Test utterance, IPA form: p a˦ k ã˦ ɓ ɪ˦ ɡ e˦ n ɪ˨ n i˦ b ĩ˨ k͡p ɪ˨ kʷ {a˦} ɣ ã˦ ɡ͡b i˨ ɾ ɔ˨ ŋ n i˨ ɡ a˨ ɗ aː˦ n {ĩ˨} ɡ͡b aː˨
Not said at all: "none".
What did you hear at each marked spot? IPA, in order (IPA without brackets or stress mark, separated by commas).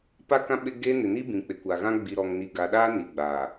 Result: a˨, i˨